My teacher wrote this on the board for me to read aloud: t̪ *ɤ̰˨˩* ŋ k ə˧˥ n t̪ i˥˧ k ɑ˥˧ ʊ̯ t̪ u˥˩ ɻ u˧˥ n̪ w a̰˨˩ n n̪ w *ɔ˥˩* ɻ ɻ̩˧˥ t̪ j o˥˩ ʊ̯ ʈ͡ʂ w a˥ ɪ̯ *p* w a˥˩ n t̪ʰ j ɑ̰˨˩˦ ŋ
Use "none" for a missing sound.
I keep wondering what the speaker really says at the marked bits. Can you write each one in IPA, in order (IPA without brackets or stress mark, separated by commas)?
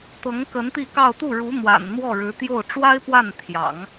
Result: ɤ˧˥, ɔ˥˩, p